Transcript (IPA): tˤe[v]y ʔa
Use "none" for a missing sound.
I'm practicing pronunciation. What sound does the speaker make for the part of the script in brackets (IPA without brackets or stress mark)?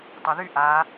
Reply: ð